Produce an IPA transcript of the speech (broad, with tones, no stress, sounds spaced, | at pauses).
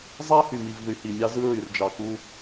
zˤ æ˦ h y˨ m i˨ v ð y˨ h i˨ mʲ ɑ˦ z ɯ˦ ɹ y˨ r d͡ʒ ɑ˨ k u˦